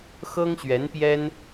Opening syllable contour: high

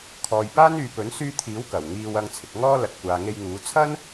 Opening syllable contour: low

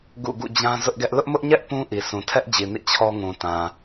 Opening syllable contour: falling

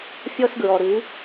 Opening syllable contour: high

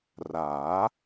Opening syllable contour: rising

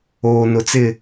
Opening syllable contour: low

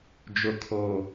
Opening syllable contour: low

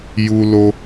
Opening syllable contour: high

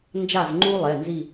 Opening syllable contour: falling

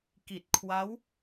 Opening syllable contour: low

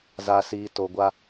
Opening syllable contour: low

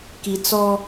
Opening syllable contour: low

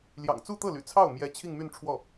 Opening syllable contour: low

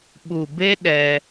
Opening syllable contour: low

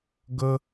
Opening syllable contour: high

